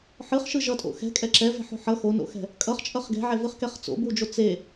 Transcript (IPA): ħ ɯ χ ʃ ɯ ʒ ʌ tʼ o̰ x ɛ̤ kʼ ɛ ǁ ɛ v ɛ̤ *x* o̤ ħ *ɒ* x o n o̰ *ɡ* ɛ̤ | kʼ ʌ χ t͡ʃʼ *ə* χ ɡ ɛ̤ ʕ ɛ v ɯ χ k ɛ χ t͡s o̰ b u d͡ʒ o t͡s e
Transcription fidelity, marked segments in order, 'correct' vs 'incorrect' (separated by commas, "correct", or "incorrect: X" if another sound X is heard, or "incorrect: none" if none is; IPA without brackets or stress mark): incorrect: ħ, incorrect: ʌ, incorrect: x, incorrect: ʌ